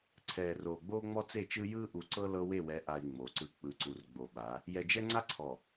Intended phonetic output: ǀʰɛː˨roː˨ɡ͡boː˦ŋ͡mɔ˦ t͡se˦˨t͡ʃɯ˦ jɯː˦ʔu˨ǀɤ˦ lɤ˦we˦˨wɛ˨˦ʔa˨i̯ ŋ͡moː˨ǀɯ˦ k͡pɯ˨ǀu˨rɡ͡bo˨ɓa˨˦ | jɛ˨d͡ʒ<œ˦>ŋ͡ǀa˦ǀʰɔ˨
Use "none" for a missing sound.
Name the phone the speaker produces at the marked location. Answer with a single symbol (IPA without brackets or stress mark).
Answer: ɛ˦